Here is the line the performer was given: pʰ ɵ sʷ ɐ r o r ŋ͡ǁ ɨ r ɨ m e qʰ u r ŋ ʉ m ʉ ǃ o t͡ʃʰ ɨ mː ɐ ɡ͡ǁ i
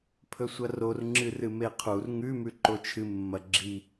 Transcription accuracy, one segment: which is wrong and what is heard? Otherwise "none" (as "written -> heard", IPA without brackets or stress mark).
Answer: none